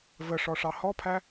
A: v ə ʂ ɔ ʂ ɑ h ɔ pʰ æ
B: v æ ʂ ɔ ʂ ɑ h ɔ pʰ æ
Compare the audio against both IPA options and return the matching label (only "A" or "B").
A